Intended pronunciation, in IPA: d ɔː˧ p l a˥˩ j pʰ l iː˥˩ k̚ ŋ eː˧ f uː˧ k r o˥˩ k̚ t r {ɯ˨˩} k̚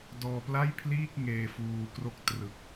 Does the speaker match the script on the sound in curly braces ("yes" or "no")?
yes